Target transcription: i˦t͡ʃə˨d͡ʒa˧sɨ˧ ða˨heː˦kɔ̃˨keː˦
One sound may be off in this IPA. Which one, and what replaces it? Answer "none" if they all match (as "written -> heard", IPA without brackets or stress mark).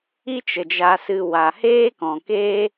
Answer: ð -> w